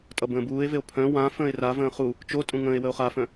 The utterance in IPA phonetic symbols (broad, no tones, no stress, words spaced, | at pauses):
tʼʌbə̃ːbuːe̯veo̯ pʰœ̃ wã fə̃ːe̯ravə̃ː χu | t͡ʃotʼũ ŋə̃ːe̯wəo̯χafœ̃